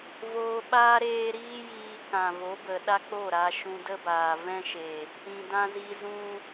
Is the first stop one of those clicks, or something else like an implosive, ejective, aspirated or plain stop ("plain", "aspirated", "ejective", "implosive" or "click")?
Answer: implosive